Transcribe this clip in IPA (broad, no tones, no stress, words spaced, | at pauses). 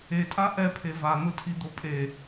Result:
etʼa ʔɛpʰe van̪ʊtʰid̪o pʼe